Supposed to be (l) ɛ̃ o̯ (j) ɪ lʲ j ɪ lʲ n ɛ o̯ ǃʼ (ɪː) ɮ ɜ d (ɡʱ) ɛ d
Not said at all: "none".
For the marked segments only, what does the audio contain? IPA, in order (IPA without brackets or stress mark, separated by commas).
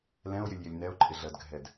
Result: l, j, ɪ, ɡʱ